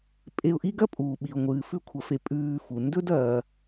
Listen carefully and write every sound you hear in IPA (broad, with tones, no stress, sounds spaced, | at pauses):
pʼ e˨ ʊ̯ ʔ i˦ ɡ ɐ˥ pʼ uː˩ ɓ i˩ ʊ̯ ŋʷ ɨː˩ f ʉ˦ kʷʰ ɐ˨ f e˨ pʼ ʉː˨ f u˩ n d ɵ˥ d ɐː˨